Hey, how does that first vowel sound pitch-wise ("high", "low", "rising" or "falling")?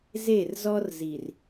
falling